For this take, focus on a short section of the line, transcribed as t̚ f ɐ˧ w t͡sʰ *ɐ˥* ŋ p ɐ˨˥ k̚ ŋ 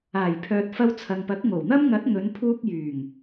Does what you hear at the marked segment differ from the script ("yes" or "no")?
yes